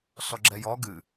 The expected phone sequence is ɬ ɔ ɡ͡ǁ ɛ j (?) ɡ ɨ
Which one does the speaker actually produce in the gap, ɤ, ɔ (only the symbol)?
ɔ